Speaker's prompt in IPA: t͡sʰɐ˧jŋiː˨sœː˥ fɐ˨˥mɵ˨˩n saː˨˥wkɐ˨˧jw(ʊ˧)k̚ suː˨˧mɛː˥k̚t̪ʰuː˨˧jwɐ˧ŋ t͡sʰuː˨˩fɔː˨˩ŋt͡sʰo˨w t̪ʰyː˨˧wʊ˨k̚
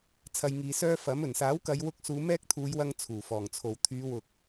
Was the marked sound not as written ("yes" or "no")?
no